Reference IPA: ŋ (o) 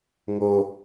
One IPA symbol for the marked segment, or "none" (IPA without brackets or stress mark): o